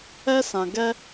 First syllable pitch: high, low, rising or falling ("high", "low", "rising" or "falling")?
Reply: high